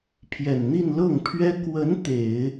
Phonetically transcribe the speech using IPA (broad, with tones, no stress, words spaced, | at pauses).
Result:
pʰjɛ˨˩nn̪i˥˧n lɤ˥˩ŋpʰɥɛ˥ kwə˧˥n t̪e˨˩˦ɪ̯